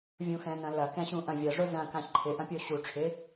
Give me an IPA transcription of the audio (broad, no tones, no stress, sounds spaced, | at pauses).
vʲ ũ x ɛ̃ n ɐ̃ l ɐ k ɛ̃ ɕ ũ ʔ ɐ̃ vʲ ɐ ʐ ʊ z ɐ̃ k ã ç ǃʰ ɪ ʔ ɐ̃ pʲ o ɕ u ʈ͡ʂʰ ɪ